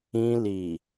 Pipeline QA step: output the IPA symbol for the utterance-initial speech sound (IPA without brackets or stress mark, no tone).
ĩ